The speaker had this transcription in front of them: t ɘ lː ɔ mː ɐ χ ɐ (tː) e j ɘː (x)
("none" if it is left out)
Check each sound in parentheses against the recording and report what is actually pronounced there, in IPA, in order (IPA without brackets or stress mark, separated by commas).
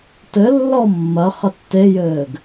tː, ɡ